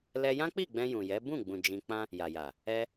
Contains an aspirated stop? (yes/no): no